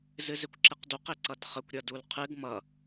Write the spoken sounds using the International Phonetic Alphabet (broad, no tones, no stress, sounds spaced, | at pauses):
z ɨ z ɪ kʷ ǁ ɪ q d u q ɪ ǀ ʌ d χ ə kʷ ɾʲ ʌ d u l qʰ ɨ ɡ m ʌ